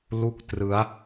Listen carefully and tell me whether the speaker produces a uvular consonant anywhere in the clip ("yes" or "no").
no